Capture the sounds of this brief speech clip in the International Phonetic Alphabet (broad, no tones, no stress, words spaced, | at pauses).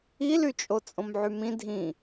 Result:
ilyt͡ʃʼo t͡sʼõmʕymĩ dʱĩ